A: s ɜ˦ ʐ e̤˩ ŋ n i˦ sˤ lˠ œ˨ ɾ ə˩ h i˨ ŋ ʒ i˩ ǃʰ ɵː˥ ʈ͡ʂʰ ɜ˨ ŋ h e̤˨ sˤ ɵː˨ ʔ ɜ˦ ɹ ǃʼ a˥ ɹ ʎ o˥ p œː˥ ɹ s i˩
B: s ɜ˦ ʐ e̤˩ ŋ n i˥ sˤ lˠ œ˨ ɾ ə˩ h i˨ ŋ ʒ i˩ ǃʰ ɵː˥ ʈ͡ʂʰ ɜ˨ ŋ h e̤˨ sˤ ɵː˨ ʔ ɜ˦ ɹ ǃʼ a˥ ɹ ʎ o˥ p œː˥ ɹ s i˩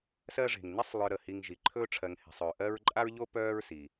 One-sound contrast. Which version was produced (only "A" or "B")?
B